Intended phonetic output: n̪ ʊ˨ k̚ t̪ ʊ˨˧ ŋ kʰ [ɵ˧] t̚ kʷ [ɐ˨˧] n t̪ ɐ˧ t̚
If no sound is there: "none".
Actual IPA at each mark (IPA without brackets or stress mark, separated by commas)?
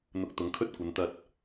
ɵ˥, ɐ˨˧